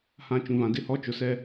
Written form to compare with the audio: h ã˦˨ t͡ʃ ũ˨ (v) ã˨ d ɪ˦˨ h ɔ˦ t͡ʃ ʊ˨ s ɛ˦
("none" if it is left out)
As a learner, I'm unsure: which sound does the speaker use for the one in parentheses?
v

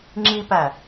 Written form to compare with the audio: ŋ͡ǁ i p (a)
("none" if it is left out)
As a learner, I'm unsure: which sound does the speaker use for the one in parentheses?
æ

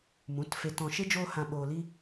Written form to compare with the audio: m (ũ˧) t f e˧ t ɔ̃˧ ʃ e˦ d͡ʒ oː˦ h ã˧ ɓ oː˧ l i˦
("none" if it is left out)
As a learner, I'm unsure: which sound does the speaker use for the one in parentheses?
ũ˨˦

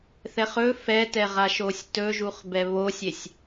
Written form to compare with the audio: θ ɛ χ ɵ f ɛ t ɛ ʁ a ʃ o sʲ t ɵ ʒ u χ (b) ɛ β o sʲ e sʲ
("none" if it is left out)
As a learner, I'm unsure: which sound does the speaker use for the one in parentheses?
b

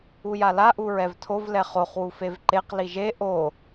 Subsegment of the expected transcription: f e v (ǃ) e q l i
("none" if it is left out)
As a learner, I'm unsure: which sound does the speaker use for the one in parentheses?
ǃ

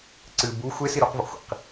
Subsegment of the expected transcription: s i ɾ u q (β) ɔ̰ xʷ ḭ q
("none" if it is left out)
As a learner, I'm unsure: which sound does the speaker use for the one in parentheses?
v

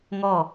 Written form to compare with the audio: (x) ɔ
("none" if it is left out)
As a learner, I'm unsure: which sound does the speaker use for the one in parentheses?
ŋ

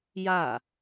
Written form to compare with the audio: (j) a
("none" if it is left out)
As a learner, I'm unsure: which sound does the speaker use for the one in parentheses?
j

